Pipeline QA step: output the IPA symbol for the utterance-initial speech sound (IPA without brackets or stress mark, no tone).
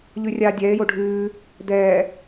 ʎ